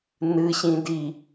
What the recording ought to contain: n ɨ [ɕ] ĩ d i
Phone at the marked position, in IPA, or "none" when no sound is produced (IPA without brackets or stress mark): ɕ